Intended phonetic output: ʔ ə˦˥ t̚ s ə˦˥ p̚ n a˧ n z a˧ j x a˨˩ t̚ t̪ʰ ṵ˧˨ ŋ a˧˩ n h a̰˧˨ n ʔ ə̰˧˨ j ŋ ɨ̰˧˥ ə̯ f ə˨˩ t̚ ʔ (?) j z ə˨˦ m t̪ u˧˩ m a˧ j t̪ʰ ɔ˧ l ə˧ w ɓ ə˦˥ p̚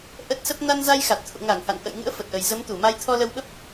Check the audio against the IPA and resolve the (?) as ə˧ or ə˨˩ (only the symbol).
ə˨˩